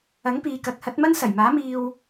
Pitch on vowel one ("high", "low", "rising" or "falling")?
rising